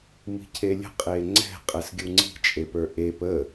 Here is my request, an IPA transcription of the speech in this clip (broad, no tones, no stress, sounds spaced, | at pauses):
m i̤ cʰ e lʲ ə̤ qʼ e ŋ͡ǀ ɛ̤ qʼ ɛ s ɡʲ u ŋ͡ǀ i̤ t͡ʃʼ e p ə˞ ʔ e p ə